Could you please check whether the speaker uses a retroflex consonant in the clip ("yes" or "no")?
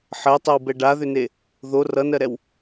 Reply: yes